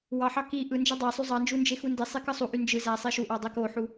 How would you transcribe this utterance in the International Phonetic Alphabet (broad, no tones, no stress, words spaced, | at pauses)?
wɑħɑ ki ʔɯ nd͡ʒɯdˤæsˤy zˤɑnd͡ʒu nd͡ʒexundisˤi kɯsˤuʔy nd͡ʒɯ zæsˤi ʃuʔɑ dˤekoħu